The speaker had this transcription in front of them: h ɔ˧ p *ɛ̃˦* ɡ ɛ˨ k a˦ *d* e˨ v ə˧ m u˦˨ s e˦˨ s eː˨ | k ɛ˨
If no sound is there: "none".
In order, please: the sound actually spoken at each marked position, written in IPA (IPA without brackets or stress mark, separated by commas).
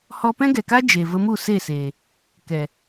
ɛ̃˦, d͡ʒ